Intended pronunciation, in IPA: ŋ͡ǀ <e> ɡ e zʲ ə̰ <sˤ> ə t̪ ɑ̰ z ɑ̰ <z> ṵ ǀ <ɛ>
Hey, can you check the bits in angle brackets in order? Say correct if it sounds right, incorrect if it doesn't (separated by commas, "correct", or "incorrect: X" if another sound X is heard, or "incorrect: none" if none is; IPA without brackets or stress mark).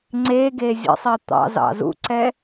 correct, correct, correct, correct